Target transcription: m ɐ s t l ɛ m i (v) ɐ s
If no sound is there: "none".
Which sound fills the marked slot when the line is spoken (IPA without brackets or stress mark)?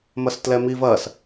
v